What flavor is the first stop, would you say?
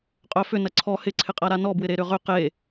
ejective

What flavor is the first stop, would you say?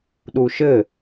implosive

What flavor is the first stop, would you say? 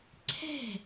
click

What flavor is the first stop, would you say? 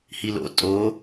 ejective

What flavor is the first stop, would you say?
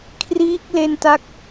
aspirated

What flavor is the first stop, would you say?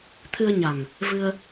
aspirated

